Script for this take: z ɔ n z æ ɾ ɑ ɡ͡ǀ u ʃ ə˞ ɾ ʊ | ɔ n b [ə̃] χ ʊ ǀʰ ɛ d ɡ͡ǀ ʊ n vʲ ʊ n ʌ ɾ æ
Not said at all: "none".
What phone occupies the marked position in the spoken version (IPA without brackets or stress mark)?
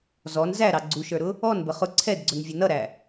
ə